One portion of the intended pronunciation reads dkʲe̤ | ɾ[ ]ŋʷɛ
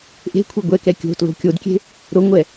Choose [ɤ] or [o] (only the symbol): o